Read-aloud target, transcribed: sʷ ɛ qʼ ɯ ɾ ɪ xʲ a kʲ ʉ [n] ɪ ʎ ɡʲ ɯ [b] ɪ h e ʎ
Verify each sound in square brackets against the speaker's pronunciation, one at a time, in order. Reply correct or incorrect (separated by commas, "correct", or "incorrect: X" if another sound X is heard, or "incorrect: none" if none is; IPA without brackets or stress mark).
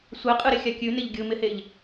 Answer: correct, incorrect: m